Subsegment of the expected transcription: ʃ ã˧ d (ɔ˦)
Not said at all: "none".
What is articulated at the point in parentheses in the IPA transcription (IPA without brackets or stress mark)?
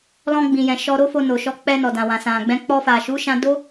o˦